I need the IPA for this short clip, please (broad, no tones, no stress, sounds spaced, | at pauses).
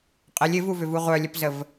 qʼ ɪ lʲ ɪ v u v ʏ v u ʁʷ œ lʲ ə p z ə v